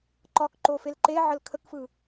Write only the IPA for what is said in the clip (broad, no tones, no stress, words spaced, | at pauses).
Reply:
ǃɒkǃo felǃeʕəl kʰəkfɯ